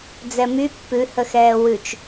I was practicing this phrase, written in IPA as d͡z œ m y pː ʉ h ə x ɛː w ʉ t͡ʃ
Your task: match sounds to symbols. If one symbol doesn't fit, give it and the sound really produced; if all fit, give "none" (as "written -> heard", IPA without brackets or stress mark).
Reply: œ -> ɛ